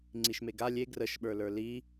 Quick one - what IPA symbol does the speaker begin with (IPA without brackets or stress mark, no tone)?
ŋ͡ǀ